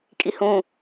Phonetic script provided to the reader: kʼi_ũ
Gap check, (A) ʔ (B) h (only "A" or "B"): B